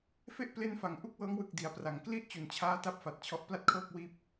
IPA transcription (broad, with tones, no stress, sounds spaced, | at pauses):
f e˥˩ ʔ p l e˦˥ n f a˩˦ ŋ ʔ u˥˩ k̚ w ɤː˦˥ ŋ w ɯ˨˩ k̚ d i˩˦ a̯ p r a˩˦ ŋ k l i˥˩ ʔ t͡ɕ u˩˦ n t͡ɕʰ aː˦˥ t a˥˩ p̚ f a˨˩ t̚ t͡ɕʰ ɔ˦˥ ʔ p l a˥˩ t̚ kʰ ɤː˥˩ k̚ w iː˥˩ p̚